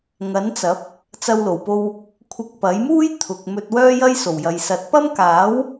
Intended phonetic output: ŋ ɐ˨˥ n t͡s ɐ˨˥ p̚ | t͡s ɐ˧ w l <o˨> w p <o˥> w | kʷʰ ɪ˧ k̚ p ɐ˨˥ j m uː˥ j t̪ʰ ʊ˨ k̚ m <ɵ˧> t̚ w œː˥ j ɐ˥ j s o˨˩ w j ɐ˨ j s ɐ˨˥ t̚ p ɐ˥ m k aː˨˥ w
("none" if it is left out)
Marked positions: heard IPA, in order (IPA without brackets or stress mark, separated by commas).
o˨˩, o˧, ɵ˧